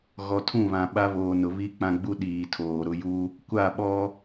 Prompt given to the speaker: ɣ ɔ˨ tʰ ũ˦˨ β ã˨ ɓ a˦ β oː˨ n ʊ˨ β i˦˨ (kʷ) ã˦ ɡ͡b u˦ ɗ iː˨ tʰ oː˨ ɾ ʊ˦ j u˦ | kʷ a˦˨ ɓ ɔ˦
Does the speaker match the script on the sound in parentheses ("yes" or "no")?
no